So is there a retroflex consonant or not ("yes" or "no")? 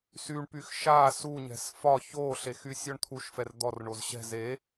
yes